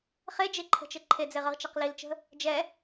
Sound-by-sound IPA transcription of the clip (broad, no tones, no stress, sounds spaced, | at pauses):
χ e d͡ʒ e ǃʰ ə̤ t͡ʃ ɘ ǃʰ e d͡z e ʁ ə ʁ t͡ʃ ɐ q l i l t͡ʃ ə̤ | d͡ʒ ɛ